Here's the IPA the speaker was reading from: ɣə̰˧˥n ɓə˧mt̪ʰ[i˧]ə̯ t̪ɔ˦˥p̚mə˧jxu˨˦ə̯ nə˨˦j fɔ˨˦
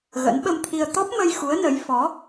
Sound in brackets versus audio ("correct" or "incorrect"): correct